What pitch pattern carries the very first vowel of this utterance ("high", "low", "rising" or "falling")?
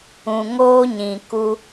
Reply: low